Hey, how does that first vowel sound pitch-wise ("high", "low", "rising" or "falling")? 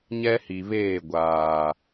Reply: high